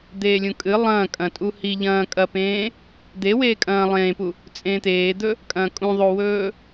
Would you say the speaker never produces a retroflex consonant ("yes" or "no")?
yes